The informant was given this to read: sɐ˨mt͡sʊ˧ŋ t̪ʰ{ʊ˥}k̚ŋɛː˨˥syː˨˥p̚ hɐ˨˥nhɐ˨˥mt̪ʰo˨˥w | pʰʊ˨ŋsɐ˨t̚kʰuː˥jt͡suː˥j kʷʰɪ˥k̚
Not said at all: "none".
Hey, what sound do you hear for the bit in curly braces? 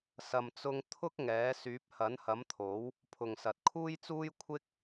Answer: ʊ˥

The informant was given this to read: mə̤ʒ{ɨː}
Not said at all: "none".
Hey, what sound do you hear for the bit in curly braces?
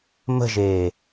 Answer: eː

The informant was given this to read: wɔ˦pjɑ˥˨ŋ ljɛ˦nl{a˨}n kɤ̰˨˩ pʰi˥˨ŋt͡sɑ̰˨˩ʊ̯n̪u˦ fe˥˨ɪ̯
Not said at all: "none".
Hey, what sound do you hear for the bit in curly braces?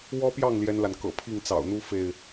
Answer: a˨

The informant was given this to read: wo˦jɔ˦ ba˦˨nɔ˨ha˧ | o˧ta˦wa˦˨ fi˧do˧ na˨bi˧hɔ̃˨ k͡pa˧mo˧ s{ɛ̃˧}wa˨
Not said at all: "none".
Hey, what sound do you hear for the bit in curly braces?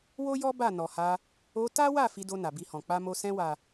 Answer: ɛ̃˧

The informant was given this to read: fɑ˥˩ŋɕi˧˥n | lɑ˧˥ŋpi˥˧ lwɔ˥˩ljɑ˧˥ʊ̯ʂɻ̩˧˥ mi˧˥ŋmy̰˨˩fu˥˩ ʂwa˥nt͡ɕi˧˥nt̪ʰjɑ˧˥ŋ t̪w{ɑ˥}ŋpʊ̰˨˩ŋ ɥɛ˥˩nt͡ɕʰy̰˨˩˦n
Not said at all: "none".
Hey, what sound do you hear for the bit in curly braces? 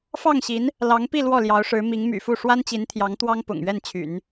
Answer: ɑ˥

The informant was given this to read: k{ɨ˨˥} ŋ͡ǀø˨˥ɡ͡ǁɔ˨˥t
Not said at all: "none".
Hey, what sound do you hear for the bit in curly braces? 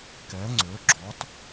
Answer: ɛ˨˥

